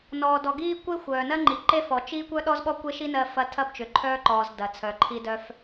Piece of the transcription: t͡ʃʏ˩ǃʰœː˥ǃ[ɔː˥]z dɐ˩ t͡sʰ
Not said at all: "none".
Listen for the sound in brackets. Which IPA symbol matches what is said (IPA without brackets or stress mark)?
ɔː˩